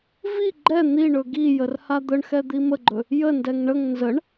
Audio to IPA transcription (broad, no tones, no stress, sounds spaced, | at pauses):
v i ɡ͡ǃ ɛ n̪ i ɳ ɵ ɡ i j ə r h a d̪ ə ɳ x ɛ d̪ i m ə ɡ͡ǃ ɵ | j ə n d ɛ ŋ ɳ ə ŋ n z ə ɳ